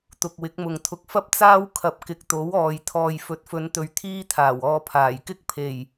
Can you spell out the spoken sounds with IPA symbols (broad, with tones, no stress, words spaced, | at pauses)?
t̪ʊ˨k̚wɪ˨˥k̚mʊ˨ŋt̪ʰʊ˧k̚ fɐ˥p̚t͡saː˥w kʰɐ˧p̚kɪ˨˥k̚t̪o˨˥wɔː˨j t̪ʰɔː˨jfɵ˨˥t̚fɵ˨˧nt̪ɵ˨ɥ t̪ʰiː˥t̪ʰaː˨˩wɔː˧pʰaː˨˩j kɪ˥k̚pʰe˨˩j